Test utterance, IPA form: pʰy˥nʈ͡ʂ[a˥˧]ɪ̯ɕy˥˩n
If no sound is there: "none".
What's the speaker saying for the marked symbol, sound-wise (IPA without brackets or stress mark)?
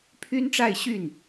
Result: a˥˧